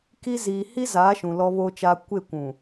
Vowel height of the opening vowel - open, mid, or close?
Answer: close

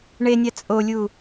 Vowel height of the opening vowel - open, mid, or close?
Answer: mid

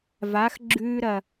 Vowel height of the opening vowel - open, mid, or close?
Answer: open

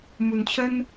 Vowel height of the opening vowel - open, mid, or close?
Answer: close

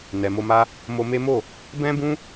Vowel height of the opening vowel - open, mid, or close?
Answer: mid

